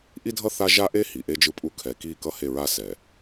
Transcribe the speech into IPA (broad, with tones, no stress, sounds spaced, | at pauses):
ʔ i˦ dʱ ʌ˦ θ a˦ ʒ a˦ ʔ e˦ h i˨ ʔ e˦ d͡ʒ ɯ˦ pʼ u˦ kʰ ɛ˨ k i˦˨ k ʌ˦ h e˦˨ ɹ a˦ s ɛ˨